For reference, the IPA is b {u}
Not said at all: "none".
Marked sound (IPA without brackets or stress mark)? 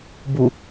u